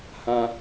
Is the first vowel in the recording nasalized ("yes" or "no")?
yes